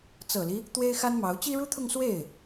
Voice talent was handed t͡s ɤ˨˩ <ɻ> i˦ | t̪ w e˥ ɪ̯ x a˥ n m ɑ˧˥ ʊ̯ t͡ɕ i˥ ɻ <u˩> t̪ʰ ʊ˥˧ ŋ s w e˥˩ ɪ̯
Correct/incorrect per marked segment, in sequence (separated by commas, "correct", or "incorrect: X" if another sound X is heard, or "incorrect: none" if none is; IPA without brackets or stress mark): incorrect: l, incorrect: u˥